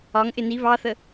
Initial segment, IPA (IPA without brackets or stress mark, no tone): ɒ